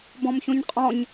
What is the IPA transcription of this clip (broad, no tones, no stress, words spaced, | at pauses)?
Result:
bɔ̃mçõɲqʼɔ̃ɲ